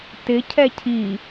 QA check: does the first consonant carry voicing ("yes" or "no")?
no